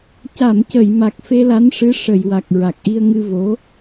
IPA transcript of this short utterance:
c a˨˩˨ m c ə˨˩˨ j m a˨˩ k̚ f e˧ l a˧˥ n ʂ ɨ˧˥ ʂ ə˨˩˨ j w a˨˩ k̚ ɹ a˨˩ k̚ ʔ i˧ ə̯ ŋ ɨ˧ v o˧˥

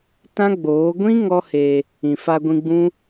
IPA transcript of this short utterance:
t ã˦ ɡ͡b oː˨˦ ɡʷ ĩ˦ ŋ ɔ˦ h e˧ | ĩ˨ f a˧ ɡʷ ĩ˧ ɡ͡b ũ˦

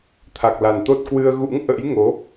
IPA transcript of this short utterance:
t̪ʰ a˨˩ k̚ l a˨˩ n t̪ o˦˥ t̚ k w ɨ˧ ə̯ ɣ ṵ˧˥ ŋ ʔ ə̰˧˥ j ŋ o˨˦

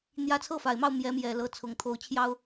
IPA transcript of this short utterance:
n̪ j ä˧˥ t͡sʰ ɤ˥˩ f a˨˩ ɪ̯ m ɑ˥˩ ʊ̯ m j ɛ˧˥ m j ɛ˨˩ l ɤ˧˥ t͡sʰ ʊ˨˩ ŋ t̪ʰ o˧˥ ʊ̯ t͡ɕʰ j ɑ˥ ʊ̯

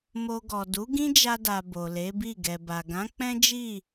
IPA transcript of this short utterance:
m o˧ ɡ ɔ˨ d u˨˦ ɡ ĩ˦ d͡ʒ a˧ d a˨ b o˨ l e˨˦ b i˦˨ ɡ ɛ˨ b a˨ ɡ ã˨˦ k͡p ɛ̃˦ d͡ʒ i˦˨

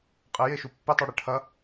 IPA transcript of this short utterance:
qʼ e j e ʃ u pː e tˤ u ɽ e ʈʰ ɐ

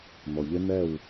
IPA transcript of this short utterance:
n̪ ɔ˩ ʎ ɪ˦˥ n̪ ɛ˥˩ w

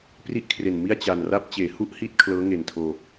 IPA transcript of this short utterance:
p r i˥˩ ʔ kʰ r e˨˩ n m i˥˩ a̯ t͡ɕ a˨˩ n r a˥˩ p̚ t͡ɕ eː˩˦ h u˥˩ ʔ h i˥˩ t̚ kʰ l ɤː˦˥ ŋ e˨˩ n tʰ oː˧

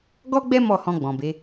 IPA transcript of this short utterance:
ɡ ɔ˦ ɡ͡b ɛ˦ m ɔ˦˨ h ɔ̃˧ ɡ͡b ɔ̃˨ b e˨˦

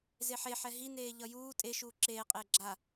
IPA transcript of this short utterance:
z e ħ e ħ ɛ ɦ i n eː ʎ ʌ j uː tʼ e ʃ uː ǁ eː qʼ eː ɡ͡ǁ a

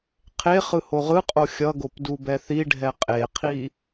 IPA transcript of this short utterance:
qʰ e χ ɯ h o ʁ ɯ qʼ o xʲ ʌ ɡ o p d u b ɛ θ i ɖʱ ɛ qʼ e qʰ i

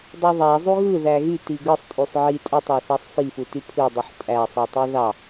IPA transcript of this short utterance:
dˤ u ðˤ æ zˤ u ɣ ɯ ð æ ɣ y t i ɡ ɯ sˤ tʼ y sˤ ʕ i tʼ u tˤ ɑ θ æ sˤ f i f u t y pʰ ɯ dˤ u ħ tʼ æ sˤ i tˤ i ð ɑ

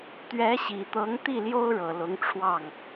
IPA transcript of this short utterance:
t̪ ɥ ɛ˧˥ ɕ i˨˩ t̪ ɤ˧˥ ŋ t̪ i˥˩ l j o˥ ʊ̯ ɻ ɤ˨˩ l ʊ˧˥ ŋ ʈ͡ʂʰ w ɑ˥˩ ŋ

